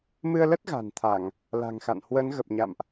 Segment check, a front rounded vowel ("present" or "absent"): absent